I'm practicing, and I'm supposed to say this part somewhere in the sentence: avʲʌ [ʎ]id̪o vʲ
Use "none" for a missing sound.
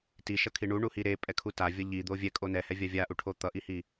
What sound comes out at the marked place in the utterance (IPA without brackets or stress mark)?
ʎ